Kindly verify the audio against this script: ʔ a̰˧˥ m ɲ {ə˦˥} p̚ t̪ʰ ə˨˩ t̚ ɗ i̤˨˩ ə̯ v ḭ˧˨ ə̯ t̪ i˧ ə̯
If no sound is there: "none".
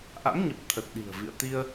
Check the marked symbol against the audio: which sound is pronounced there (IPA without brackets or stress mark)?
ə˨˩